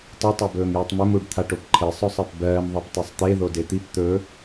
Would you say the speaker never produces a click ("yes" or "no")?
no